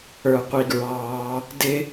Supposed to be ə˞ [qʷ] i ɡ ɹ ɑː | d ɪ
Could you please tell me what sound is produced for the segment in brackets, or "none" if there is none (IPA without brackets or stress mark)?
qʷ